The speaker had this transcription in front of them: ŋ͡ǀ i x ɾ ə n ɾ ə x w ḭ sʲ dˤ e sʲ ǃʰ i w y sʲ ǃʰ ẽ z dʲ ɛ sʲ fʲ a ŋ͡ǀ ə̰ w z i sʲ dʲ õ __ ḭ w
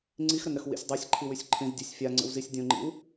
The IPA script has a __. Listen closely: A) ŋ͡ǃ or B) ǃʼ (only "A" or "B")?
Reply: A